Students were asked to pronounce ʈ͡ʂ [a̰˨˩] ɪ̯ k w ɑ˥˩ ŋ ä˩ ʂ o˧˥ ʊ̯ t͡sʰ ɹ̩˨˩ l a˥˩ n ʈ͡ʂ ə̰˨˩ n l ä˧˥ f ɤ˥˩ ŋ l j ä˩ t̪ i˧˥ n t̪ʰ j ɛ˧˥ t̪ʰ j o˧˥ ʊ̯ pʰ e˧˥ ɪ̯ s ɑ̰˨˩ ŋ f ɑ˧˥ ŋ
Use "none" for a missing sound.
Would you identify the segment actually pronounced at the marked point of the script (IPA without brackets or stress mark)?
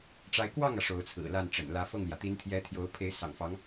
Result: a˧˥